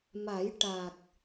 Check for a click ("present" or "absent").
absent